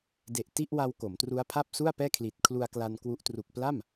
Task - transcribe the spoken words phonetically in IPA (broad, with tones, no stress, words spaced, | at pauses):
de˨˩ʔ ti˥˩ʔwa˧w ko˩˦mtru˦˥a̯pʰa˥˩p̚su˥˩a̯ pɛː˥˩kʰli˨˩t̚ kʰlu˧a̯kla˧nkwu˦˥ʔ tru˨˩k̚pla˥˩m